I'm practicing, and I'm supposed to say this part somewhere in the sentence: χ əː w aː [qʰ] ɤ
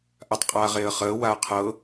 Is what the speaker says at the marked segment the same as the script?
yes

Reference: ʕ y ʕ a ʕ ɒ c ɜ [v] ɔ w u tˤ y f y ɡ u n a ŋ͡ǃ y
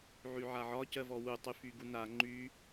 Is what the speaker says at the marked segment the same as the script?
yes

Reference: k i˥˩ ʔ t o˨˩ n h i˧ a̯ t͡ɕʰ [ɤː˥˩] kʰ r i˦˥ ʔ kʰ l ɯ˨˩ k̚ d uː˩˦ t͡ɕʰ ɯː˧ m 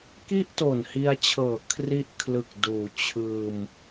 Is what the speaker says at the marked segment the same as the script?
no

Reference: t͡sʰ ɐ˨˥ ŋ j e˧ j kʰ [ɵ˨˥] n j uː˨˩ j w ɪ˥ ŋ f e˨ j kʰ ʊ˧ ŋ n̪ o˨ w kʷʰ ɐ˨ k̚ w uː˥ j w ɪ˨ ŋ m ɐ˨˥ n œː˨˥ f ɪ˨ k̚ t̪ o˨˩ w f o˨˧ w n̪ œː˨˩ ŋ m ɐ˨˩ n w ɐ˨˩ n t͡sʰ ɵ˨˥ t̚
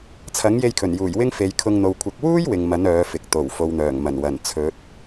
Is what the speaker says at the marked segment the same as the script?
no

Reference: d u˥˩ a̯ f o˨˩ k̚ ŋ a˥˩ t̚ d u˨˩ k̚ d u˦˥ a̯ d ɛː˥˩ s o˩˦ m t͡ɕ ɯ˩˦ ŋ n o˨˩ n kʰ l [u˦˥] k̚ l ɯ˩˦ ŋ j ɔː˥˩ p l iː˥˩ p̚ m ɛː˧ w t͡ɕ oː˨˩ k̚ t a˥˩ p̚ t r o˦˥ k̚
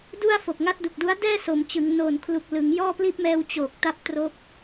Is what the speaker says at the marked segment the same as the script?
no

